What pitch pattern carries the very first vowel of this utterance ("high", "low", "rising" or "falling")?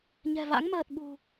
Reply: low